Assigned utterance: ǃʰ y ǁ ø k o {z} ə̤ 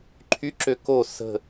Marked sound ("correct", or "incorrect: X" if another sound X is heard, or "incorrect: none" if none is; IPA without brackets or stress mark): incorrect: s